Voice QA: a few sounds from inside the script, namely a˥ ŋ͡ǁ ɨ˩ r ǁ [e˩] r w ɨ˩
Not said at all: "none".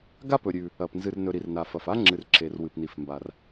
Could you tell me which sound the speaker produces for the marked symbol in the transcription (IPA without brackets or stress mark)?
e˩